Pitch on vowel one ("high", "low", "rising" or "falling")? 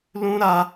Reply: high